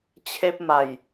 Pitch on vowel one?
high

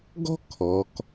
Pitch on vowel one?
high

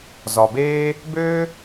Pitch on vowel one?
low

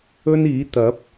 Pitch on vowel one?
high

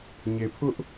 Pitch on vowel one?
low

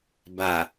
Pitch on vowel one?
low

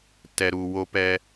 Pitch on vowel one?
low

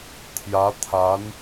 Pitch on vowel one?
rising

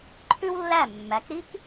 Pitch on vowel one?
high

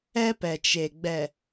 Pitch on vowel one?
high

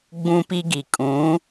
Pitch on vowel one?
high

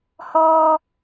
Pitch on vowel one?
high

